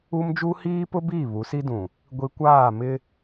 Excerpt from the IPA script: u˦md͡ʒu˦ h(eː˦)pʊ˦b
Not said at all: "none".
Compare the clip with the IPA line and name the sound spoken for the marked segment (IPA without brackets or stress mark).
iː˦